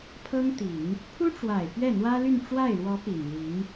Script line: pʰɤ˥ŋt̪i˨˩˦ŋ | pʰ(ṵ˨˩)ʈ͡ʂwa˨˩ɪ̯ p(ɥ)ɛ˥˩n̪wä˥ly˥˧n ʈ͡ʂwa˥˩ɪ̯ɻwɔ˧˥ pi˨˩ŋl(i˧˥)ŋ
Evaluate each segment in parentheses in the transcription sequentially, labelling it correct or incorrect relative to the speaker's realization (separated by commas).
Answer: incorrect, correct, correct